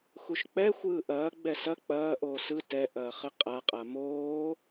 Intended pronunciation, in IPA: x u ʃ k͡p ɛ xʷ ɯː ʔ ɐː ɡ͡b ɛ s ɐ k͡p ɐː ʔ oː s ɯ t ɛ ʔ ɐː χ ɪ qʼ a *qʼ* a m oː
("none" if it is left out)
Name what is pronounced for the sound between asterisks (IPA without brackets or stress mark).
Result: qʼ